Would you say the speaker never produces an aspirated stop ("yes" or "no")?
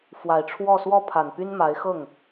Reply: no